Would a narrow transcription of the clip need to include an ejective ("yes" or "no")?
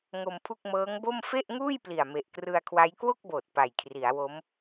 no